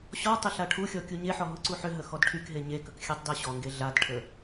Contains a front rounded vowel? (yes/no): yes